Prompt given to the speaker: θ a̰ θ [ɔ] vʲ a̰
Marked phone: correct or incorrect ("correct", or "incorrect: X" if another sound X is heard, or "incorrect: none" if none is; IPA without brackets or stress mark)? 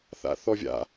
correct